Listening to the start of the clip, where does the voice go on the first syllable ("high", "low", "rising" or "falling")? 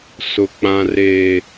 low